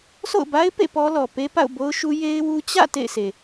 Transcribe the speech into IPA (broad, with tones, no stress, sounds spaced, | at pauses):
sʰ o̰˦˨ ʊ̯ b a˦ ɪ̯ p ḛ˦˨ p ɔ˦ l ɔ˨ p e˦ p a̰˦˨ ʊ̯ b o˦ ʊ̯ ʃ u˦ j e˦ ɪ̯ w u˦ t͡ɕ ä̰˦˨ t ḛ˦˨ ɪ̯ sʰ e˨